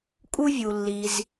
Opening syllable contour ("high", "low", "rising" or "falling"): high